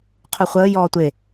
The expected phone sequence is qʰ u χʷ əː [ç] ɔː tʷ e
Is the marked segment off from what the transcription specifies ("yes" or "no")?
yes